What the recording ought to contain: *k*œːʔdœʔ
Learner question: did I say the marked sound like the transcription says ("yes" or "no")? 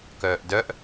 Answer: yes